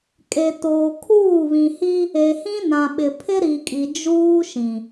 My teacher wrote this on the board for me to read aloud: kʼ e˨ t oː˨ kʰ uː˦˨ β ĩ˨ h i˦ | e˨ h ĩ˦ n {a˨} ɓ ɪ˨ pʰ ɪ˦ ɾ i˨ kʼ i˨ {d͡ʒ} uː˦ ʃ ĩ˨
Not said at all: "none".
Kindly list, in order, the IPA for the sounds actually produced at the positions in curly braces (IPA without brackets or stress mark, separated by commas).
ã˨, d͡ʒ